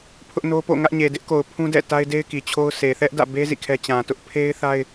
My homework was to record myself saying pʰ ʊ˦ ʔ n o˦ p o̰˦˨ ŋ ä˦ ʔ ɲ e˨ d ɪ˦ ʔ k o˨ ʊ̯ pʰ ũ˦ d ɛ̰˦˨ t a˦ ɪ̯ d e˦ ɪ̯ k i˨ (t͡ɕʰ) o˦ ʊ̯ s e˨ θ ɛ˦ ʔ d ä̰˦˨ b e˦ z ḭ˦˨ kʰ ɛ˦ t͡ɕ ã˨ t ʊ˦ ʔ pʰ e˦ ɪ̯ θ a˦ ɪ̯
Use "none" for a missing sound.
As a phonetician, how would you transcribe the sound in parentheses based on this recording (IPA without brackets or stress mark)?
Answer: t͡ɕʰ